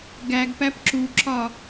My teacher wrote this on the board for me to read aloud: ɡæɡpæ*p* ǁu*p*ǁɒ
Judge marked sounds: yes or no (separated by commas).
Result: yes, no